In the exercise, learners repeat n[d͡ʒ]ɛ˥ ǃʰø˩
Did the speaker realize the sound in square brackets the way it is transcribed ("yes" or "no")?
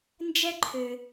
yes